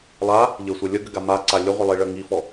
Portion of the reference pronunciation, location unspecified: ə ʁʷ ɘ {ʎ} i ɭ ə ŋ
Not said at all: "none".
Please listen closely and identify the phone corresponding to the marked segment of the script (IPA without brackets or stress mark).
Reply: lˠ